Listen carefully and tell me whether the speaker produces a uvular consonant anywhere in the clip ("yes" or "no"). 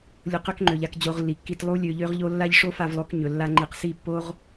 yes